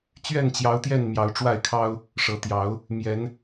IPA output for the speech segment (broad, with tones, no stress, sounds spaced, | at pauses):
t͡ɕ ɥ ɛ˥˨ n t͡ɕ j ɑ˨˦ ʊ̯ t̪ j ɛ˥˨ n m j ɑ˨˦ ʊ̯ ʈ͡ʂ w a˥˨ ɪ̯ kʰ ɑ˦ ʊ̯ | ʂ ɤ˨˦ t̪ j ɑ˨˦ ʊ̯ | m j ɛ˨˦ n